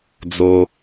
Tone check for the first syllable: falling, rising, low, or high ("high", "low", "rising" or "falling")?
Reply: high